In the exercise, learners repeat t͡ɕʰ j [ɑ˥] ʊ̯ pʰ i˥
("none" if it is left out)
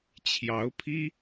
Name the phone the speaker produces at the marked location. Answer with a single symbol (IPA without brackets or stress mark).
ɑ˧˥